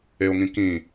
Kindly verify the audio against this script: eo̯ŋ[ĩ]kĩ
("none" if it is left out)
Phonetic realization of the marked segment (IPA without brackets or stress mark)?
ĩ